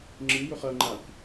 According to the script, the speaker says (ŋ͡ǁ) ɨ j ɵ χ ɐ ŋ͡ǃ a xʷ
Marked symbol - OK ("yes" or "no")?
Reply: yes